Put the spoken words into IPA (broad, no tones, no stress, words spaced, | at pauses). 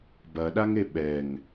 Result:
bɐɗaŋe ɓɛŋ